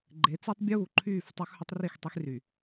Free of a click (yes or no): no